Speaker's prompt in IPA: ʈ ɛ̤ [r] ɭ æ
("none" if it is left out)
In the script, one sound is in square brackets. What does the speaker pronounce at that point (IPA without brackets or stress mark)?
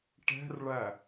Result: r